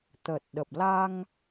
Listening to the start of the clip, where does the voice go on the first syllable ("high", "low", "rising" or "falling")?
low